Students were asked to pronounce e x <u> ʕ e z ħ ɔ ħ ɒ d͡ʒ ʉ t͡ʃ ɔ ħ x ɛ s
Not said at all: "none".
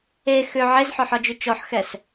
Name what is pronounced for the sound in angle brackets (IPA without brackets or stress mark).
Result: ʏ